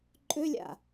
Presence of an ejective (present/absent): present